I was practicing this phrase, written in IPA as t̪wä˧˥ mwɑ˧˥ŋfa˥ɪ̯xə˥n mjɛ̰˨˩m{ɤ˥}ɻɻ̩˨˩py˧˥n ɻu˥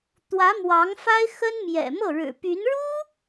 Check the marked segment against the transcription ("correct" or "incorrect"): incorrect